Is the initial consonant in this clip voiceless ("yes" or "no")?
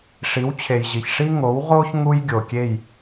yes